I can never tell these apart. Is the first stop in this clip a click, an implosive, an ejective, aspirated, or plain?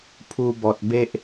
aspirated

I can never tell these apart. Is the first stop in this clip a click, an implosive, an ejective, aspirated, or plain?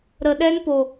implosive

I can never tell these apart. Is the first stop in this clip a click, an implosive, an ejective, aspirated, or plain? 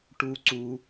plain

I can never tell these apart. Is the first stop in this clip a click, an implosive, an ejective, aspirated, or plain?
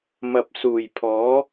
plain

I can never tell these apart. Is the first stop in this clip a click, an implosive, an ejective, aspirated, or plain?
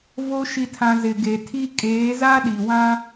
aspirated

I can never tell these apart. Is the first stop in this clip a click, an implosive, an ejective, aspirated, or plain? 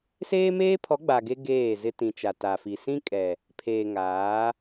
aspirated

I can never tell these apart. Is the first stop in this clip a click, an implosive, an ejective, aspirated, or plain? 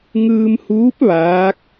plain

